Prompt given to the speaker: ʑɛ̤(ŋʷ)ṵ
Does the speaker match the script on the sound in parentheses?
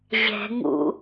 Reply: no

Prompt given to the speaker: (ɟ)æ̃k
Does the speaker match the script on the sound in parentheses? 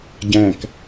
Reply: yes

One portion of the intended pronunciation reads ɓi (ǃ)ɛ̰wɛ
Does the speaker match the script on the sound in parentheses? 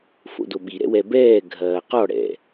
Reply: no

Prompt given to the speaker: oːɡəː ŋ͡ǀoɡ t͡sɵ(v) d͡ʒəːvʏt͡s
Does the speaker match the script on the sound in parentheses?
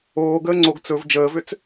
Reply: yes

